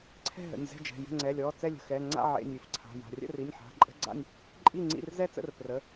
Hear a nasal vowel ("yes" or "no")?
no